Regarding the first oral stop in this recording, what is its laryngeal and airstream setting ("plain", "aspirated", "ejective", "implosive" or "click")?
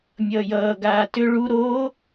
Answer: plain